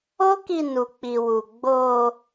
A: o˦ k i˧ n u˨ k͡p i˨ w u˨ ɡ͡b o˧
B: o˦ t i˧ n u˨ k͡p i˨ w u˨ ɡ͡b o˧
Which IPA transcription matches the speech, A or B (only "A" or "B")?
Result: A